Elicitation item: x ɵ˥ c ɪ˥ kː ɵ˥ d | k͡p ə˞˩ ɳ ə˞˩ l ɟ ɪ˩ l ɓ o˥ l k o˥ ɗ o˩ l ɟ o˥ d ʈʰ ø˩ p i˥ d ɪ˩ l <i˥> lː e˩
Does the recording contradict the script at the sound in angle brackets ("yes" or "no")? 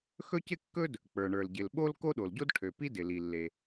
yes